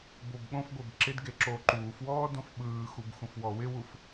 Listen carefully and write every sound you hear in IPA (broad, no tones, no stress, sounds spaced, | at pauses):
b o b ɠ õ f ɡʷ e b ǁ ɪ d ɡ e ǁ oː ǃ uː f w ɔː d õ f ɓ ɯː x u b x ũ f w ɔ w ɪ w u f